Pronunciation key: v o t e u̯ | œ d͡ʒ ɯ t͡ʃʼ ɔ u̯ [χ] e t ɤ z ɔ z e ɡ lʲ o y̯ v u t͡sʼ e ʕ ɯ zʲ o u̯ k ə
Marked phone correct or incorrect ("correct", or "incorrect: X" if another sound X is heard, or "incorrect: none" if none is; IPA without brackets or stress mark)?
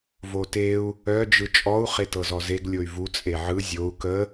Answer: correct